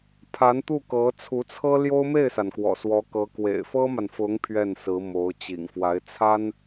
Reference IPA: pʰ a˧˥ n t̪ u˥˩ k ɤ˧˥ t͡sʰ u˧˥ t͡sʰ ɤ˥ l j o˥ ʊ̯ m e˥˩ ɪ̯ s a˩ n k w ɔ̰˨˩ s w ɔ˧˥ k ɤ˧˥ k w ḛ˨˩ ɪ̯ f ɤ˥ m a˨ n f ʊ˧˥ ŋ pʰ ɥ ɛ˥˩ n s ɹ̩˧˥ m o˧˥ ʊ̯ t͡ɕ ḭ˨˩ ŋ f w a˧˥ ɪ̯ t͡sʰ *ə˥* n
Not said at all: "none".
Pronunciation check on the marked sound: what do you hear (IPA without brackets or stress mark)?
a˥